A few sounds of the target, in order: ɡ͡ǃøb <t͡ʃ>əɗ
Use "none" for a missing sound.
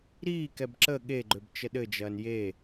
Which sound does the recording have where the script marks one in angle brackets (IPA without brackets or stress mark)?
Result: t͡ʃ